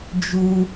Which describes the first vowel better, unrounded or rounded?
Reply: rounded